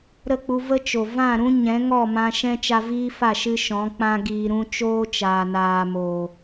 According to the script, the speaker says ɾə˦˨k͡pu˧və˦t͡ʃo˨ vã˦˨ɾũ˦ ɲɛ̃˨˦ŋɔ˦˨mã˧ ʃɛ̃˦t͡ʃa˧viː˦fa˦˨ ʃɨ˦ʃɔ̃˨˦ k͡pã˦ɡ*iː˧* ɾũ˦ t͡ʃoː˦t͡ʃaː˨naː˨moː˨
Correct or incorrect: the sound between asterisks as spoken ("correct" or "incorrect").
correct